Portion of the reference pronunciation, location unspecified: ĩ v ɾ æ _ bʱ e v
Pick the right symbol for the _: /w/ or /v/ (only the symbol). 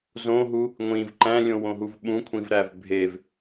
v